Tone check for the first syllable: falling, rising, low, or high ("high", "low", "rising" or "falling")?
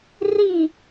falling